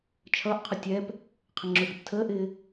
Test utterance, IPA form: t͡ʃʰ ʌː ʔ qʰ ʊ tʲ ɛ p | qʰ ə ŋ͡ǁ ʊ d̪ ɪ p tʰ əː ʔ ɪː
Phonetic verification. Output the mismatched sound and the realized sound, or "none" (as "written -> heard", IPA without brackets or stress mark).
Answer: none